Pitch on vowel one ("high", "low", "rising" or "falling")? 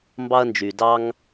high